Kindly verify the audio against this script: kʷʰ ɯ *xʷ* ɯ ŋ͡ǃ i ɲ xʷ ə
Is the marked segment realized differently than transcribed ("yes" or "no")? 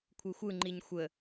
no